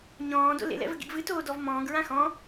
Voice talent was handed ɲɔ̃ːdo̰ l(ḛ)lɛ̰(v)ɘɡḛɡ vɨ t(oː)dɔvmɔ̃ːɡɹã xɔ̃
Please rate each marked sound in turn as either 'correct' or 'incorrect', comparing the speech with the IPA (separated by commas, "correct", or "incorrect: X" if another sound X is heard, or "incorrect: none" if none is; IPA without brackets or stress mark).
correct, correct, correct